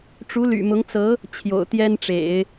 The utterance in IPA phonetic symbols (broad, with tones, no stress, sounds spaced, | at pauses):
ʈ͡ʂ u˧˥ l y̰˨˩ m ʊ˧˥ ŋ t͡s ɤ˧˥ | t͡ɕʰ j o̰˨˩ ʊ̯ t̪ j ɛ˥ n ʈ͡ʂ ḛ˨˩˦ ɪ̯